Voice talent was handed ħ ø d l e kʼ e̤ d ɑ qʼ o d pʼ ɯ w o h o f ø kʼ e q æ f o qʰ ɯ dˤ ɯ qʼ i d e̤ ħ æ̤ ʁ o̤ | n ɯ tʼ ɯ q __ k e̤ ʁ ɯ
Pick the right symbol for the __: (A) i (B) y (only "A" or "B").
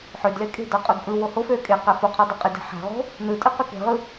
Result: B